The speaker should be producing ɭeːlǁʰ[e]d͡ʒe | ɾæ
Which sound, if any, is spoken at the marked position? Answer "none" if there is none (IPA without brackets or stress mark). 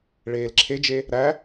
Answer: e